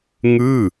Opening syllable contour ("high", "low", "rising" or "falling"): falling